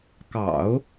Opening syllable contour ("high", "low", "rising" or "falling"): low